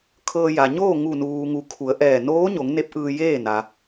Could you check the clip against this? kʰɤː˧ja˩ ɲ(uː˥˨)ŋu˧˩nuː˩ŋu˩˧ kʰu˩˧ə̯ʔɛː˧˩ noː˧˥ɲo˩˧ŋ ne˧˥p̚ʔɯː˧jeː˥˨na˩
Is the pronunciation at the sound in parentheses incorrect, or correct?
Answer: incorrect